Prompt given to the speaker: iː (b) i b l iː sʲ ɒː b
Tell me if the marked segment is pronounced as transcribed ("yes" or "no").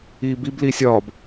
yes